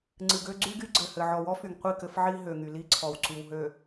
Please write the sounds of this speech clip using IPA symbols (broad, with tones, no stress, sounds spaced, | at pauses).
ŋ͡ǀ ɨ˨ ɡ ø˦ ɡ͡ǀ y˦ ɡ y˦ ɡ͡ǀ ɘ˨ h ɘ˨ ʕ ɔ˨ w ɔ˦ f y˨ ŋ qʷ i˦˨ k ɘ˦ f ʕ i˦ ɦ ø˨ ŋ y˨ l i˦ ǀʰ ɔ˨ w ǀ y˨ w ɦ ø˨